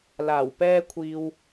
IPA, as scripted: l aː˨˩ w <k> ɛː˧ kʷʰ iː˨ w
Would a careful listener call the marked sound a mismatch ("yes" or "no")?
yes